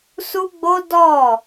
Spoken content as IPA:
s u˦ ɡ͡b o˦ d ɔ˦˨

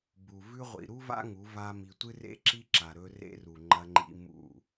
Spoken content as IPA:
b u˨ v ʉ˦ ʁʷ ḭ˨ ɾ u˦ v a̰˦ ŋ u˨˦ v a˦ m i˧ tʷ ɨ˦ r ḛ˦ ǁ i˦ ǁ a˨ ɾ ɵ˧ r ḛ˦ r u˨ ŋ͡ǃ ɐ˧ ŋ͡ǃ ḭ˧ m ṵ˦˨

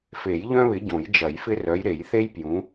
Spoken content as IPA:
f e˨˩˦ j ʎ œ̃˦ β ɪ˨˦ ɟ õ˨˩˦ j d͡ʒ ɐ˨˩˦ j f ɪ˦ r œ˨˦ j ɾ e˨˩˦ j θ e˦ j p j ũ˨˦

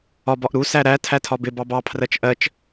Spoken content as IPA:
ɒ b ɒ ʔ ɾ u s æ ɾ æ tʰ æ tʰ ɒ b ɪ b ɑ b ɑ pʰ r ɜ t͡ʃ ʔ ɜ t͡ʃ

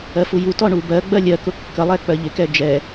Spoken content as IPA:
ɜ f u j u t ɔ ɳ u b ɜ ɡ͡b ɜ lʲ ɜ k ʊ kː ə lˠ ɛ k͡p ɜ ʎ ɪ k ɛ d͡ʒ ɛ

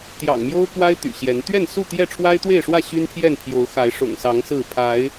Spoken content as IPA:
t̪ j ɑ̰˨˩ ŋ m j o˦ ʊ̯ k w a˦ ɪ̯ t̪ y̰˨˩ ɕ j ɛ˨˦ n t̪ ɥ ɛ˥˨ n s u˥˨ t̪ j ɛ˥˨ ʈ͡ʂʰ w a˦ ɪ̯ t̪ w e˥˨ ɪ̯ ʂ w ä˥˨ ɕ y˦ n pʰ j ɛ˥˨ n pʰ j o˨˦ ʊ̯ x a˨˦ ɪ̯ ʂ ʊ̰˨˩ ŋ s ɑ˨˦ ŋ s ɹ̩˥˨ pʰ a˨˦ ɪ̯

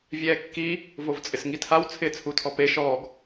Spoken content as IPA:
vʲ ɛː kː i | v o v t͡sʼ ɪ s ŋ i tʰ a w t͡sʰ ɪː t͡sʰ u tʰ ɔ p e ʃ ɔː ɡ

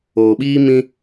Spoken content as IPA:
oː˨ ɓ iː˦ m ĩ˦

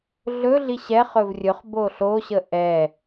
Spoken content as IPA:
ɮ ɵ ɮ i ɕ ɛ χ ɵ v rʲ ɵ χ b o ɬ o ɕ ə ʔ ɛ

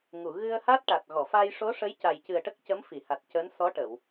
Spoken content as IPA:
ŋ u˨˩˨ ɣ ɨ˧ ə̯ h a˦˥ t̚ ʈ a˨˩ t̚ ɣ ɔ˨˩˨ f a˧ j ʂ o˧˥ ʂ ə˧˥ j c a˨˩ j c ɨ˨˩ ə̯ ʈ ə˦˥ k̚ c ə˧˥ m f i˨˩˨ h a˨˩ t̚ c əː˧˥ n s ɔ˧˥ ʈ ə˨˩˨ w

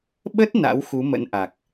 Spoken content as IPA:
ɓ ə˦˥ t̚ n a̰˧˥ w x u˨˦ m ə̰˧˥ n ʔ a˨˩ k̚

